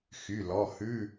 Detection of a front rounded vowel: present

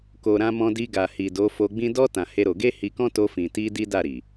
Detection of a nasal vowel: present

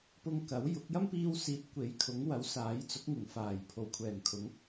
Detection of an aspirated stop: present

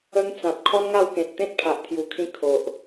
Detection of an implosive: absent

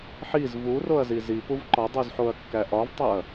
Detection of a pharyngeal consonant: present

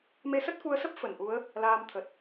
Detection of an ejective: absent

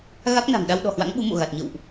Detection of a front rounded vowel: absent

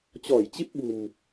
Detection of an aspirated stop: absent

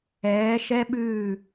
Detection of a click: absent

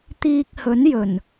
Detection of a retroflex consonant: absent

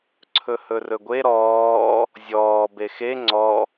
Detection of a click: present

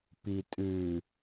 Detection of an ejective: present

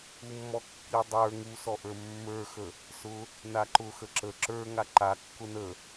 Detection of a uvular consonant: absent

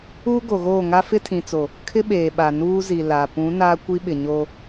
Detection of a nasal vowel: present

